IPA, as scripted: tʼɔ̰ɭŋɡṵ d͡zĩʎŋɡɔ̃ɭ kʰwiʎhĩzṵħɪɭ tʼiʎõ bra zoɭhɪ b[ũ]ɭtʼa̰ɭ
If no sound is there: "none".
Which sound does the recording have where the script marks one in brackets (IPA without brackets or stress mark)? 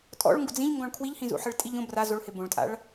õ